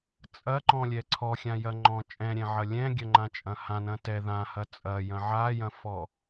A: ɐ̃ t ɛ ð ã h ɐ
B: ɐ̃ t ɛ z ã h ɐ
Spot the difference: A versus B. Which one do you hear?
A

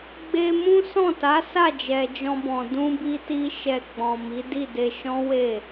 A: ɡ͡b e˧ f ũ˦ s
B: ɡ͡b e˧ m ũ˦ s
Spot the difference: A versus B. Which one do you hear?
B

